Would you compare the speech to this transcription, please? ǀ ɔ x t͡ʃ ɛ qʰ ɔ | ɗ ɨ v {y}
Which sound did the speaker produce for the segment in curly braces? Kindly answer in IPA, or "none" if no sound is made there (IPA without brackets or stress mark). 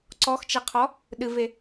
e